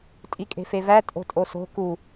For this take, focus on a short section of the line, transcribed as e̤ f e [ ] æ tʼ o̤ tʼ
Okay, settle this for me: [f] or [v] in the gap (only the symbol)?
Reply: v